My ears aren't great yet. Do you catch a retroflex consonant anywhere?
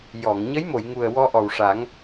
yes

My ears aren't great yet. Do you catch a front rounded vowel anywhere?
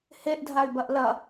yes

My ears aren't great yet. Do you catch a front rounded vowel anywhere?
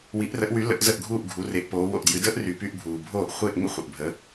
yes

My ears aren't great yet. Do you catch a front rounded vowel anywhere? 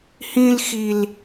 no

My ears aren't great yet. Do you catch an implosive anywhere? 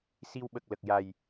yes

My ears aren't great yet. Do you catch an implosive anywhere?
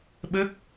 yes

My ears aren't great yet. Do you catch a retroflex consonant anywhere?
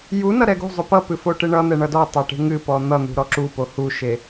yes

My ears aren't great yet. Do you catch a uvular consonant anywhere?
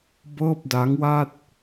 no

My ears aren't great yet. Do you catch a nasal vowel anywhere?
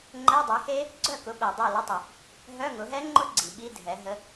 no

